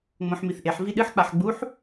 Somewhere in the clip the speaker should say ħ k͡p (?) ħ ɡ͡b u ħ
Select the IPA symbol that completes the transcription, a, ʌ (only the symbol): a